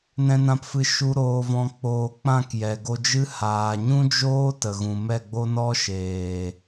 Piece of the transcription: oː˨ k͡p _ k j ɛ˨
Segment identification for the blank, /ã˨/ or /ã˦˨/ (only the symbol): ã˦˨